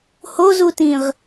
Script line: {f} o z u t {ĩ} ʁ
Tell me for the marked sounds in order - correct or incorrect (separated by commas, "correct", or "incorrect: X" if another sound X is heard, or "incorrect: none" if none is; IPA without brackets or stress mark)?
incorrect: h, correct